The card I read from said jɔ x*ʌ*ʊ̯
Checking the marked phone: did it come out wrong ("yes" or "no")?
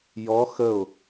yes